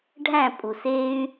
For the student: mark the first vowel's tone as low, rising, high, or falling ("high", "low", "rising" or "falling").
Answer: falling